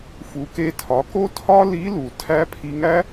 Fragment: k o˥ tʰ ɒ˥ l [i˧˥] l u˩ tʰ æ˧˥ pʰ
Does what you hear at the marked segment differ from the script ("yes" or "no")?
no